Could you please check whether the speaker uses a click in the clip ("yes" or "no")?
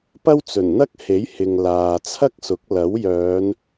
no